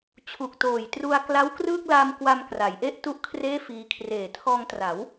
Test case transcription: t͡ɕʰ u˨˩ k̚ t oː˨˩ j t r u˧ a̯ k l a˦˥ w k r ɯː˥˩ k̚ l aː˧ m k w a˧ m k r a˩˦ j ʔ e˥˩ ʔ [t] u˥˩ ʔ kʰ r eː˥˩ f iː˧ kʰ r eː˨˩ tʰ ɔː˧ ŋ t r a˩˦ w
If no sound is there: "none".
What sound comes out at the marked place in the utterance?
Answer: t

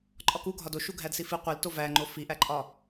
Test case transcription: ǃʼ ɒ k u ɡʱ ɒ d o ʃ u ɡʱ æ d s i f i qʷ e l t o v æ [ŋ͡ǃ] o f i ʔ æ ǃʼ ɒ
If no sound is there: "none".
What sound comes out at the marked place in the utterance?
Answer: ŋ͡ǃ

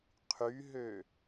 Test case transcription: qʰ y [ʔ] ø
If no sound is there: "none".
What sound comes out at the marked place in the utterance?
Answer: ɦ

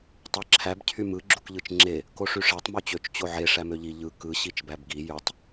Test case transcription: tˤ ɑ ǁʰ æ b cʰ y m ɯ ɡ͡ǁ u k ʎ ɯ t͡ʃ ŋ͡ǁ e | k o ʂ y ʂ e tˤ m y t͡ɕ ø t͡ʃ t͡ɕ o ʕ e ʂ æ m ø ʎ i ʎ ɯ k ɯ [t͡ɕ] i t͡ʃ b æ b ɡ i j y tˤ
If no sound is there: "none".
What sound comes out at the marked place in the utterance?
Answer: ɕ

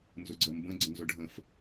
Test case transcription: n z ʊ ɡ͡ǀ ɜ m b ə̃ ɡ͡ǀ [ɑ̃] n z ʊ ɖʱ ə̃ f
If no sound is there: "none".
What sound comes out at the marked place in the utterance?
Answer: ə̃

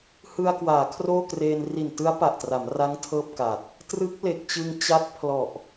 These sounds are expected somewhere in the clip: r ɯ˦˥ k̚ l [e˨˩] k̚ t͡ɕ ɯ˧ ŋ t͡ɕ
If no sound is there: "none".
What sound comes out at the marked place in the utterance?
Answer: e˨˩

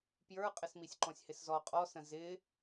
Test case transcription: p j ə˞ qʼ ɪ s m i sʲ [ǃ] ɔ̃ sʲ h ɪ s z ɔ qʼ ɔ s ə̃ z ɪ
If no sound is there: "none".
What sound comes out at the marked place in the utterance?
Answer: ǃ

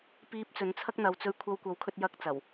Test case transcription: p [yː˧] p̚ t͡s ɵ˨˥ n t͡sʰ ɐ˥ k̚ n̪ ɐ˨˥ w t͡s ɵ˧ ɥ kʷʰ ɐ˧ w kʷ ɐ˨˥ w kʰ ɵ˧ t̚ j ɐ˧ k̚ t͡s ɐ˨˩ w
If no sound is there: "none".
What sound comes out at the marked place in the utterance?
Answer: iː˧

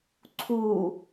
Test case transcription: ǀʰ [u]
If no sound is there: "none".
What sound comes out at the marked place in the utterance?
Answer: u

